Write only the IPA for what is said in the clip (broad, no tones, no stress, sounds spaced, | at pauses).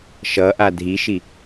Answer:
ʃ ʌ ʔ a dʱ i ʃ i